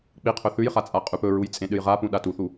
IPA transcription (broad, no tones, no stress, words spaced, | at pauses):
k͡piqʰɵ θʉjχat͡sʼa qʼʉpɵɹuj t͡sʼẽɗɨjʁapũ ɗatuθu